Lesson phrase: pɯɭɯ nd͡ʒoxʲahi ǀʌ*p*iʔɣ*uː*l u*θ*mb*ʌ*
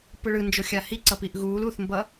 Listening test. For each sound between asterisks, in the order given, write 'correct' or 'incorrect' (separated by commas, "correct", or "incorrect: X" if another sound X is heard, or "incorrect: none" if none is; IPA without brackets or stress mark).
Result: correct, correct, correct, correct